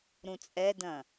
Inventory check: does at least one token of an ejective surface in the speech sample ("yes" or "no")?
yes